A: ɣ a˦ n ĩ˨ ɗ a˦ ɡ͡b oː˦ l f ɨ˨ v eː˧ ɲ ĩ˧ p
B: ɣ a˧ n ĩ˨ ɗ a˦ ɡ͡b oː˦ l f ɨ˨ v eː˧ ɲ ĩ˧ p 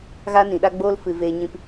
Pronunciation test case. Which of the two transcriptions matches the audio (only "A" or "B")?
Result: A